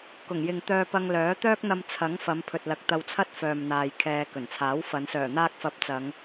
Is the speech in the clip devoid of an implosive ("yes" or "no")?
yes